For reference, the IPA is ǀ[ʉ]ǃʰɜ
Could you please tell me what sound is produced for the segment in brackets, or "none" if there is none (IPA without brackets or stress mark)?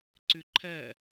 ʉ